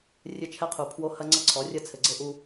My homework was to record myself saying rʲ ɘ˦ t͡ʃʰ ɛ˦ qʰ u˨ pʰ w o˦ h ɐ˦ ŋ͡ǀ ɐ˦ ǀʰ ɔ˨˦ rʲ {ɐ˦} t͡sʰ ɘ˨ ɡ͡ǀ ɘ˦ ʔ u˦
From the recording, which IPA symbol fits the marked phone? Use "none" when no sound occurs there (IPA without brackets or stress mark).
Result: ɐ˦